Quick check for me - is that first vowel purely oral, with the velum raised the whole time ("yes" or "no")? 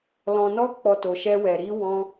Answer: no